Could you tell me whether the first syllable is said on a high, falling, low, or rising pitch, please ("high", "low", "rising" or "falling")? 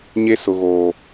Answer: high